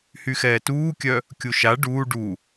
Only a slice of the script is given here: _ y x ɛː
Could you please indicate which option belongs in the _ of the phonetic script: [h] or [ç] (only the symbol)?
h